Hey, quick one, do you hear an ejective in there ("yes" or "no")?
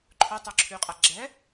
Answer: yes